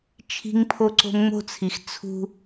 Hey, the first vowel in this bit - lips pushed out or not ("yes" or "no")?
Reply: no